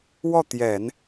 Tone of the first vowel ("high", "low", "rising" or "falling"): falling